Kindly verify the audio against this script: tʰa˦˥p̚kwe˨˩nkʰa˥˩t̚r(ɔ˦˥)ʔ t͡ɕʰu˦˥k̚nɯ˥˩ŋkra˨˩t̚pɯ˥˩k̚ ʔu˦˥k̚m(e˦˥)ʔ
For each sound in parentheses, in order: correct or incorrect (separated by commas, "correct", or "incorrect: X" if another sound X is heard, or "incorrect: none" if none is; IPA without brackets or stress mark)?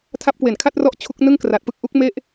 correct, incorrect: e˥˩